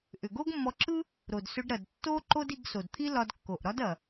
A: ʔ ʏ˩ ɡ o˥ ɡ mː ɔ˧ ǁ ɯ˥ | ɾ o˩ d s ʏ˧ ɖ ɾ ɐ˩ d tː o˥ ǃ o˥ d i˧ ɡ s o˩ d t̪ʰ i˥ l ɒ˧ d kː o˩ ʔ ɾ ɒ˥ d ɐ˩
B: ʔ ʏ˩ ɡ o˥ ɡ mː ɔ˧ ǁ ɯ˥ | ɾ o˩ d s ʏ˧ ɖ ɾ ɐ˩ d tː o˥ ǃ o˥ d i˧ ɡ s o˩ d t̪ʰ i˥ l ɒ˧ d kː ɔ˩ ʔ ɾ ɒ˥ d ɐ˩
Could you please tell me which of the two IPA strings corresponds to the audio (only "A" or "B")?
A